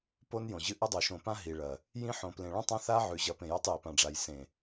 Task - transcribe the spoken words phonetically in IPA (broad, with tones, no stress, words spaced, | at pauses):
po˦njõ˨ʑɨ˦ ʔɐ˦dˤo˨ʃõ˨pã˦ ɦi˨ɭɐ˨ | jĩ˦ ħõ˨plẽ˨ ɭũ˦tˤã˦θa˦ ʕʉ˨ʑɐ˨˦ pẽ˨jo˦tˤje˨ pã˨ɖ͡ʐa˨j sẽ˨